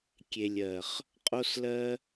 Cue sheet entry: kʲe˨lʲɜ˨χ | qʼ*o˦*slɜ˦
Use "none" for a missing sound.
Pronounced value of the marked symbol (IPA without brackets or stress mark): o˦